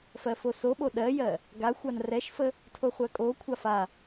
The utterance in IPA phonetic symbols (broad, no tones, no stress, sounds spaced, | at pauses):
f ɜ f o s o ɓ o ɗ ɜ j ɜ | ɡ a xʷ a n r ɛ ʃ f ə | tʰ o χʷ ɜ kʼ o kʷʰ a f a